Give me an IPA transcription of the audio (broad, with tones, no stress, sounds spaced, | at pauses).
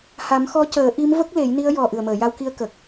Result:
h a˨˩˦ m x ɔ˧˥ c əː˨˩˦ ʔ i˧˥ m v ə˦˥ k̚ l e˨˩˦ j n i˧˥ ə̯ j ɔ˨˩ ʔ ɨ˨˩ ə̯ m əː˨˩˨ j a˧ w k i˧ ə̯ k ə˨˩ k̚